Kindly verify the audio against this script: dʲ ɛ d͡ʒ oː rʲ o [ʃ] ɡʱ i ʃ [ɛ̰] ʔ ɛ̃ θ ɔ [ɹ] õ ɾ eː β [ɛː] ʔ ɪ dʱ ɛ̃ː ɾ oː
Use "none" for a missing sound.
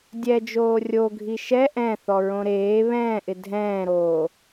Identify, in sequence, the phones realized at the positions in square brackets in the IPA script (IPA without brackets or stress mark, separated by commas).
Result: none, ɛ, ɹ, ɛ̃ː